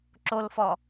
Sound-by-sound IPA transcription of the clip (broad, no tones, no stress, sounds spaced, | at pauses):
ǁ o l f ɔ